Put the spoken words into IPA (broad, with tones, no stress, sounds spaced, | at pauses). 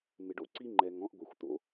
m ɪ˨ ɖ o̰˦ ǀ i˦ ŋ͡ǃ ɛ˨ ŋ ɔ̃˦ ʔ ɡʷ ɛ˨ xʷ t̪ o̰˦